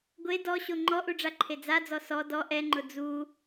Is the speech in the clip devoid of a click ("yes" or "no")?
no